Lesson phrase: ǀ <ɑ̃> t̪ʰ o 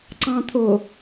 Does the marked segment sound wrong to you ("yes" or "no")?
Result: no